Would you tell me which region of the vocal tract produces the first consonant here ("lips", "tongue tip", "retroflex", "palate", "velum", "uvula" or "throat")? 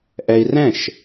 throat